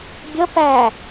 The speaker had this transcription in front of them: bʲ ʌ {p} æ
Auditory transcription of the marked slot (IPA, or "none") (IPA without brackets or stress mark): p